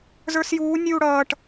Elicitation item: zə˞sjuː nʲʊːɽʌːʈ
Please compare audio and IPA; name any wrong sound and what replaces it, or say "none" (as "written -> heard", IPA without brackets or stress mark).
ʊː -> uː